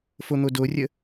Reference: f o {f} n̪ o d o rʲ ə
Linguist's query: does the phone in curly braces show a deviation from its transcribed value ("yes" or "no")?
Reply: yes